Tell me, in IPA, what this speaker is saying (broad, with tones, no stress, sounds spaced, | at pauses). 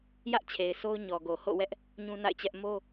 j ä˦ ʔ t͡ɕʰ e˨ ɪ̯ s o˦ ʊ̯ ɲ ɔ˨ ɡ o˨ h o̰˦˨ w ɛ˦ ʔ | ɲ ũ˦ n a̰˦˨ ɪ̯ t͡ɕ ɛ˦ ʔ m o˦